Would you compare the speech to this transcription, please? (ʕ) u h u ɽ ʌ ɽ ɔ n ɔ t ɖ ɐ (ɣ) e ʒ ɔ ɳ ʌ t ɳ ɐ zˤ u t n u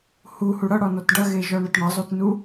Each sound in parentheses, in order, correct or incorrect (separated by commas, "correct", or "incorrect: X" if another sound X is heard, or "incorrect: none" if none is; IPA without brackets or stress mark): incorrect: h, correct